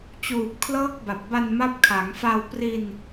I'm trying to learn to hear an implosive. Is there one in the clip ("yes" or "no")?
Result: no